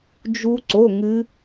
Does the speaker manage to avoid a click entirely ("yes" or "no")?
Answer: no